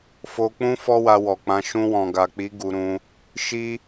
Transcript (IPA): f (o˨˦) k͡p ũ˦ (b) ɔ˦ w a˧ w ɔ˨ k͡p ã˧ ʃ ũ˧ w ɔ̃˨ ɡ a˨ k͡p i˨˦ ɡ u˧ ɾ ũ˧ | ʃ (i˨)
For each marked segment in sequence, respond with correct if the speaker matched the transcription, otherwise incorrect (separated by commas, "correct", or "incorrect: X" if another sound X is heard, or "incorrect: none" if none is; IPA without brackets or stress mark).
incorrect: o˧, incorrect: f, incorrect: i˦